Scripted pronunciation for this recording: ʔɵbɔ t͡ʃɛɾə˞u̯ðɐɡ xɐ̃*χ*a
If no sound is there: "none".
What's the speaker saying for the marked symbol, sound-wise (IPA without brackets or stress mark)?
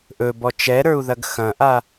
ʔ